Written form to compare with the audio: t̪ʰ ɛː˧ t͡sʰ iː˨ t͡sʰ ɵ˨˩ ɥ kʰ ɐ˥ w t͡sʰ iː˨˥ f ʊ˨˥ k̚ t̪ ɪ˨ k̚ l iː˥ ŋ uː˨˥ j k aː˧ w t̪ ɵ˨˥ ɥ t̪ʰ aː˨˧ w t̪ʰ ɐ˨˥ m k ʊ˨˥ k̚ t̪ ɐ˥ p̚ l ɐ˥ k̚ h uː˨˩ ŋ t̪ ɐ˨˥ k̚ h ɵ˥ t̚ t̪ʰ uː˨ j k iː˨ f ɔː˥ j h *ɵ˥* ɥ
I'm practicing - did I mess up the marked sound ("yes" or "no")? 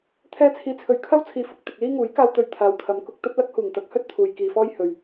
yes